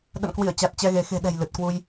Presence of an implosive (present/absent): present